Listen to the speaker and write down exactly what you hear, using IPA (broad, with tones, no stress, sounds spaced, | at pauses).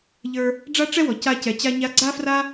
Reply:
ʎ ə˞˧ | ɖ͡ʐ a˥ ʈ͡ʂ ɛ˥ w ɔ˩ c a˧ c ɛ˩ t͡ɕ a˧ ɲ a˧ ɡ͡ǀ a˥ f r a˥